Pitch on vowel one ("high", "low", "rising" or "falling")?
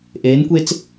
rising